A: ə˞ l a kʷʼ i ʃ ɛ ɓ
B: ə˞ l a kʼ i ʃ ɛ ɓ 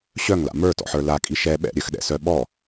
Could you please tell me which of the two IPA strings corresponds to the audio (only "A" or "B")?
B